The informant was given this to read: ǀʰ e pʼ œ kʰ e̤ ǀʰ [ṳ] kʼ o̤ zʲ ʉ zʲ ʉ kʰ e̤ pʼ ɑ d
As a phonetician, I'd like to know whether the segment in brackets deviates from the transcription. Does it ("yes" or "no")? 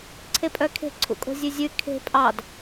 yes